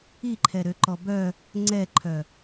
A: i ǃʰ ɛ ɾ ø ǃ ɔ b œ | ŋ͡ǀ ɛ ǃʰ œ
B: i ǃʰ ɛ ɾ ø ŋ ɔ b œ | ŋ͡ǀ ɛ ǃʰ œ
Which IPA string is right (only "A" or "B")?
A